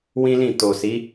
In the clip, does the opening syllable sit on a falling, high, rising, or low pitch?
high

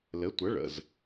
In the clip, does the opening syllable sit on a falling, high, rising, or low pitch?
rising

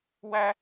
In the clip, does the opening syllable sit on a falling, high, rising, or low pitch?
high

